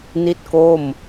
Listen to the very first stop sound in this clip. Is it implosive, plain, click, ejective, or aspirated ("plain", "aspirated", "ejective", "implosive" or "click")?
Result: plain